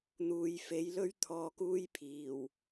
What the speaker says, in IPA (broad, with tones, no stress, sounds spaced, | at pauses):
n̪ uː˨ j f e˨˥ j l ɵ˥ ɥ t̪ʰ ɔː˨ k uː˧ j pʰ iː˨˩ w